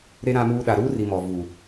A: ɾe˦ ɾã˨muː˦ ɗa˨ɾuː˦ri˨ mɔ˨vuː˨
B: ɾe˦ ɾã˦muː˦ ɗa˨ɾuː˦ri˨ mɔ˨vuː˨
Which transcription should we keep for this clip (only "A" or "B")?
B